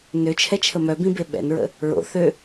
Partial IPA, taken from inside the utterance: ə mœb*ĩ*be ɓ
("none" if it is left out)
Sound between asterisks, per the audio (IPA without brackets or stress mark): ĩ